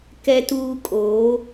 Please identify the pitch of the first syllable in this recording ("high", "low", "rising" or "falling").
high